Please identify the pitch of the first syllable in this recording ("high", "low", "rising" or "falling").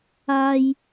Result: high